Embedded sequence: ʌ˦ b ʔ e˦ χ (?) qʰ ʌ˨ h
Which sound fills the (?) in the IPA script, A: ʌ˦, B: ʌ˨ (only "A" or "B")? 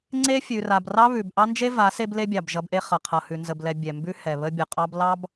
B